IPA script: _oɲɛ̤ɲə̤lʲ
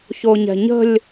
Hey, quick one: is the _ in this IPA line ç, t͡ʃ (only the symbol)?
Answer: ç